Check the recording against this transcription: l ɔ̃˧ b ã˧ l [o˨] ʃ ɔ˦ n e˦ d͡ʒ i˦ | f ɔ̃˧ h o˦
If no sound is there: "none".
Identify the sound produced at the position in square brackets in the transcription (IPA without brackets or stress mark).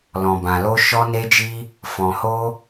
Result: o˦